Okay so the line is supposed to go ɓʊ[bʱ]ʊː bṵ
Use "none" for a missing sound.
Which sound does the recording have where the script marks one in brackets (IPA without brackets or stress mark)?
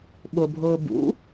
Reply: bʱ